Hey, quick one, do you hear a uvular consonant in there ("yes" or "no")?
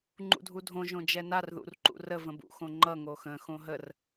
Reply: no